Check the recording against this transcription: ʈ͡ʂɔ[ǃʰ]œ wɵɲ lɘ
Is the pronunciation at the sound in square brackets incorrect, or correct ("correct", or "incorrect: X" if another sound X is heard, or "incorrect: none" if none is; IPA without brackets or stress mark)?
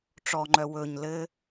incorrect: ŋ͡ǃ